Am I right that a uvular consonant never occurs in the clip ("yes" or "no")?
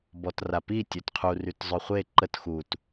no